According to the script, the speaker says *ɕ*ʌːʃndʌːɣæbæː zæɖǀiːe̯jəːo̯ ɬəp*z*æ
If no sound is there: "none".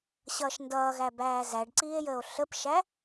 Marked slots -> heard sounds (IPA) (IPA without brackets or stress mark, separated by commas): ɕ, ʃ